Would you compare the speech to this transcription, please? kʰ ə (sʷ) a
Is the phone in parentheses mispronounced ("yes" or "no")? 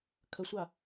no